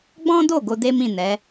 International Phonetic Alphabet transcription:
ɡ͡b ɔ̃˦ d o˦˨ ɡ o˧ d e˦ m ĩ˦˨ n ɛ˨˦

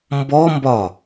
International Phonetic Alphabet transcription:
m b ɔ m b ɒ

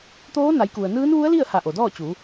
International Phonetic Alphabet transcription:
t̪ oː˧˥ n a˩˧ j k u˩ ə̯ n ɯː˧˥ n ʋ u˧˥ ə̯ l i˥˨ ə̯ h a˧˩ ʔ o˩ d ɔː˥˨ t͡ɕ u˩˧

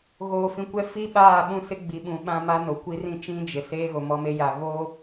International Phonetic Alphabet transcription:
ɣ oː˨ f ĩ˨ kʷ ɛ˦ f i˦ ɓ aː˦˨ ɓ ũ˦ s ɪ˦ ɡ͡b i˨ ɓ ũ˨ ɓ ã˦ m a˦ n o˨ kʷ i˦ r ĩ˦ t͡ʃ ĩ˦ d͡ʒ ɪ˨ s eː˦ ɣ o˨ m ɔ˦ m e˦ j a˨ ɣ oː˦

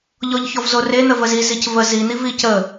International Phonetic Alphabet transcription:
ʎ ɔ ʎ ç ɔ v z o r e n̪ ə v ə z i z i c v ə z i n̪ i v i c ə

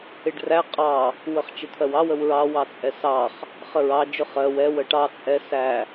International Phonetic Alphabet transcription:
ɪ ɖ r æ qʼ ɑ | w ə χ t͡ʃ ɪ t̪ʰ ɜ w ɑ w ə w ɹ ɑ w ɑ t͡sʼ ɛ s ɑ χ | χ ə ɹ ɑ d͡ʒ ʊ χ ɜ w ɛ w ə ʈ ɑ t͡sʼ ɛ s æ

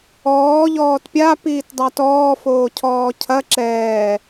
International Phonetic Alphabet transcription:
ɔː ʎ ɔː t pʲ a p iː t dˤ a t ɔː f oː cʰ ɔː cʰ ɐ ǁ ɛː

